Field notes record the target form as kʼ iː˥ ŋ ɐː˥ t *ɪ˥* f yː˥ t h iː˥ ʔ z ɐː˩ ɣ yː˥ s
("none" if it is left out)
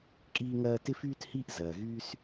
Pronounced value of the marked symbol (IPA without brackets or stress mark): ɪ˥